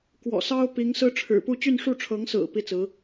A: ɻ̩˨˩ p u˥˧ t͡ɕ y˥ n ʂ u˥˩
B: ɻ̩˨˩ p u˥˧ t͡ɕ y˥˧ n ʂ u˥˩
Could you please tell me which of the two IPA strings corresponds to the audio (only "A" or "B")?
B